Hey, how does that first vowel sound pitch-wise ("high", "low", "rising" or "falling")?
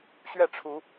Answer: falling